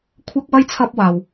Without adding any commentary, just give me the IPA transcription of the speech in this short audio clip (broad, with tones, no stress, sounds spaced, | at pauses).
kʷʰ ɐ˥ k̚ w ɐ˥ j t͡sʰ ɐ˥ p̚ w aː˧ w